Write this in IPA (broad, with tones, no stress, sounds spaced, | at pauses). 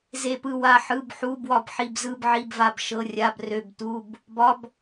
z e˦˨ p ɯ˦˨ w a˦˨ ħ ɯ˧˥˧ b ħ u˧˥˧ b w ɒ˦˨ b ħ i˦˨ b z ɯ˧˥˧ b ʕ i˧˥˧ b v a˦˨ b ʃ ɤ˧˥˧ rʲ a˧˥˧ b r ø˧˥˧ b t u˧˥˧ b | b ɒ˧˥˧ b